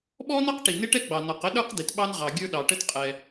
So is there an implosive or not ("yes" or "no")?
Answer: yes